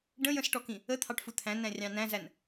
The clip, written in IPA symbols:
ɖ ə̃ j ə̃ s ʈ ɔ k ĩ | ə t̪ʰ ɑ ʈ f u t̪ʰ æ̃ n æ̃ rʲ ɑ̃ n æ̃ z æ n

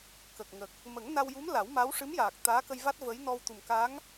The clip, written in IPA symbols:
k ə˨˩ k̚ ŋ ə˨˩ k̚ | m ə˨˩˦ ŋ n a˧ w j u˧˥ m l a˨˩˦ w m a˧˥ w ʂ ɨ˧˥ m j aː˨˩ k̚ t̪ aː˧˥ k ə˧ j v a˦˥ t̚ v ə˧˥ j n ɔ˧ w t̪ u˨˩ m k a˧˥ ŋ

